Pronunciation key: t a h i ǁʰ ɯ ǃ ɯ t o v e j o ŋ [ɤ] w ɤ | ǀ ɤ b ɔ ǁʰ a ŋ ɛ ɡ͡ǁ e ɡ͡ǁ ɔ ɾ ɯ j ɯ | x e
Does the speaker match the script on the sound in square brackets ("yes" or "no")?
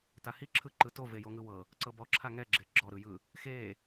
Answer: no